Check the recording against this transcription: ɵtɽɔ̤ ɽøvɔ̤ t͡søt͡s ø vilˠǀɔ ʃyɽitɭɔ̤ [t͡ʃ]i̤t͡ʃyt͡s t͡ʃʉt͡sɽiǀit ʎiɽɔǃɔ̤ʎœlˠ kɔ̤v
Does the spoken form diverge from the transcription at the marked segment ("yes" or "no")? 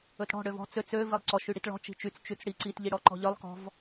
no